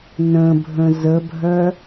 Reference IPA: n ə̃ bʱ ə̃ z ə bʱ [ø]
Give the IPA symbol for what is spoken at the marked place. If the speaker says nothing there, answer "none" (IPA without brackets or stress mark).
œ